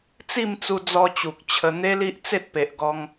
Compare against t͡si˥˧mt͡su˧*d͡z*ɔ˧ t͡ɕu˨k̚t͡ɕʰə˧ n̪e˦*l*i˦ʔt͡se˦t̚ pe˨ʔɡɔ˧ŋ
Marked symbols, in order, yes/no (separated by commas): yes, yes